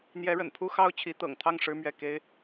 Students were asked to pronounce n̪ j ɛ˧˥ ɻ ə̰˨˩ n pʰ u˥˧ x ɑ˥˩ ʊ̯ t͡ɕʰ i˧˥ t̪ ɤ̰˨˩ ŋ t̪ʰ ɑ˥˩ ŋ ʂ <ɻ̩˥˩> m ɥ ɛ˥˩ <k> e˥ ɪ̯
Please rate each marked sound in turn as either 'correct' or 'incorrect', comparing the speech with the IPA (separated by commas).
incorrect, correct